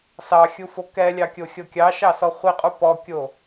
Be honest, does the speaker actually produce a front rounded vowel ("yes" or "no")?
no